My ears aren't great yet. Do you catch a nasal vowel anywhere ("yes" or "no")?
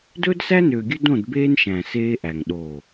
yes